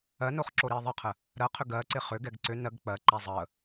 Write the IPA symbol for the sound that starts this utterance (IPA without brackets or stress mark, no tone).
ɜ